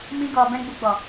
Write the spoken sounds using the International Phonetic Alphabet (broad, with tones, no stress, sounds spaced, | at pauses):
m ĩ˦ ɡ ɔ˧ b ɛ̃˦ ɡ͡b u˧ ɡ͡b ɔ˨